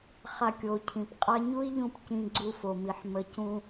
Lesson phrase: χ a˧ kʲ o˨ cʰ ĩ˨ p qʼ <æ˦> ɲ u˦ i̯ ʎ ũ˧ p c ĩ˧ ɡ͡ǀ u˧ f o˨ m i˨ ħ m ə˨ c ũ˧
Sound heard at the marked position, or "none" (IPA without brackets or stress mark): a˦